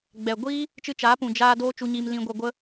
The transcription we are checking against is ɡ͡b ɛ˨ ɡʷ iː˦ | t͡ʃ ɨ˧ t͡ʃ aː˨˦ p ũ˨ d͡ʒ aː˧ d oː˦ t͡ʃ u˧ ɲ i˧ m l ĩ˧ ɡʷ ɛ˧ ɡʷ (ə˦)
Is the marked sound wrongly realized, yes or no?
no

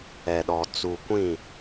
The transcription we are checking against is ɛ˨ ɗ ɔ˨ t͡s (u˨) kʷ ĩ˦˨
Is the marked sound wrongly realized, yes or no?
no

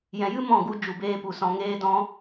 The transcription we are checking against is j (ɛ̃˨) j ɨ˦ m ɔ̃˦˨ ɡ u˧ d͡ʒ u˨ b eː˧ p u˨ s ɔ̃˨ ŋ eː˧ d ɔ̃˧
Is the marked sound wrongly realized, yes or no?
no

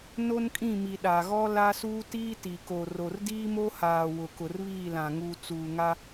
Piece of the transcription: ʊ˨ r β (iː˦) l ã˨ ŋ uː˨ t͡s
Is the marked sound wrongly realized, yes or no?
yes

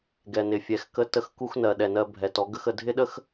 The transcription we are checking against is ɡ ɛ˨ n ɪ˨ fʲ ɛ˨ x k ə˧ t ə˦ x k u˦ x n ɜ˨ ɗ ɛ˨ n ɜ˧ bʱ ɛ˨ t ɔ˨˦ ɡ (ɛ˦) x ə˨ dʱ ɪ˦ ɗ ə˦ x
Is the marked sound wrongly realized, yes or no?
yes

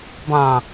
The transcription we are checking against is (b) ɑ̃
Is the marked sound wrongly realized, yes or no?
no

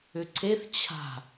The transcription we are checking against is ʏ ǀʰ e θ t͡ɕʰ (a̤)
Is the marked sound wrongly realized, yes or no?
no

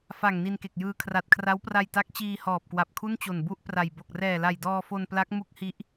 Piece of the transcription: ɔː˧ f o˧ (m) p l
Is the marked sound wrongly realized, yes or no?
yes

